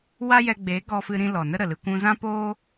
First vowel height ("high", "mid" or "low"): low